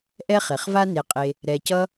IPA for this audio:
ʔ ɛ˥ χ e˩ χ v a˥ n e˨ qʼ e˨ | ɾ ɛ˨ c ʌ˦

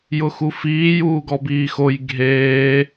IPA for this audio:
j ʊ x u f iː j uː ɡ ɔ b iː x o j ɡʱ eː

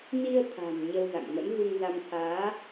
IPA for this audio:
n i˧ ə̯ t̪ʰ a̤˨˩ m ɲ ə˧ w z a̰˧˨ ŋ m ə̰˧˥ n v u˧ ŋ z a˧ m t̪ʰ aː˨˦

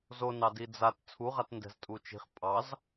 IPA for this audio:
z o n ɑ d i d͡z a t t͡sʰ u ʁ a t n d ɛ̤ z tʼ u t͡ʃ i̤ χ pʼ ɑ z

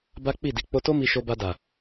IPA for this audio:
b a˦ k͡p i˦˨ d i˨˦ k͡p o˦ t o˦ m i˧ ʃ o˧ b a˧ d a˨

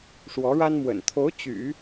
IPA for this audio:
ʂ w ɔ˧˥ ɻ a˥ n m w ə̰˨˩ n t̪ʰ o˧˥ ʊ̯ t͡ɕ y̰˨˩˦

